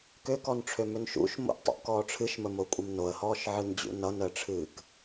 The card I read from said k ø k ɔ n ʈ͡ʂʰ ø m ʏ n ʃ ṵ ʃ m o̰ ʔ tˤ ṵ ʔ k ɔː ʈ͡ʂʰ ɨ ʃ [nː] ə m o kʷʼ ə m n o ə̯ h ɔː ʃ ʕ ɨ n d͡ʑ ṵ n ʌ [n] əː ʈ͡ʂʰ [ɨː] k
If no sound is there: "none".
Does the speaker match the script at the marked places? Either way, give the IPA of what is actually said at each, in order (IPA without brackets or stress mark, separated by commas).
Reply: m, n, ɨː